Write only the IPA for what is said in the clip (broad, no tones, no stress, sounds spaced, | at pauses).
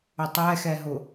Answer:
ʊ tˤ ɛ x ɛ ɦ ʊ